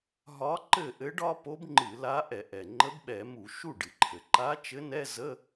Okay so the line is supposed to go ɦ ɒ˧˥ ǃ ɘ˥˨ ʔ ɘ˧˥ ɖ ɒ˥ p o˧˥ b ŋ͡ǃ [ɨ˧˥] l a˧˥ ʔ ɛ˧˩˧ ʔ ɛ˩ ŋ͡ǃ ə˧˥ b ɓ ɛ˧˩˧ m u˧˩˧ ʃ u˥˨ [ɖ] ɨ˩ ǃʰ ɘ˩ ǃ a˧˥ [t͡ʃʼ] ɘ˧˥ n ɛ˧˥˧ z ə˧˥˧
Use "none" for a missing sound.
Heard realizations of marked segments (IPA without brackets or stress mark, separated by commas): ɨ˧˩˧, ɖ, t͡ʃ